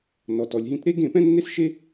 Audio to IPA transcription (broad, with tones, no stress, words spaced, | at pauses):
nɔ˩tɔ˩lʲɦĩ˧t ɾe˥ ɡẽ˥˩pɛ̃˥nːe˥sʃe˥